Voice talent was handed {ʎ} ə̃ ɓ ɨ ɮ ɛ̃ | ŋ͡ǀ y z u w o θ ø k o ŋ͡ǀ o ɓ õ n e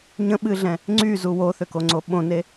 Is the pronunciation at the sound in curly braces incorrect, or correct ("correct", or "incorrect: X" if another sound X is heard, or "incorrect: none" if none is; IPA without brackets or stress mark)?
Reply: incorrect: ɲ